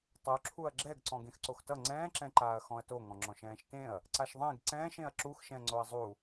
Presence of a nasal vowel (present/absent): present